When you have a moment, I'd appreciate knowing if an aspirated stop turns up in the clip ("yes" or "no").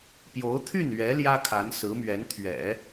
yes